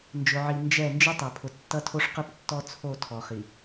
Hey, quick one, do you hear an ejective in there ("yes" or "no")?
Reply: no